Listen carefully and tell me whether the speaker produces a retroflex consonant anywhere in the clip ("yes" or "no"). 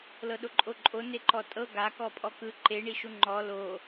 yes